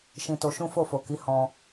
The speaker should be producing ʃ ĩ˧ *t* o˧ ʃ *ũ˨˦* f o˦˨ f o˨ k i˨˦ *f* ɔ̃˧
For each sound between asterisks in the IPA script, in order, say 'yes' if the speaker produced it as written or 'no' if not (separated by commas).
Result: yes, no, no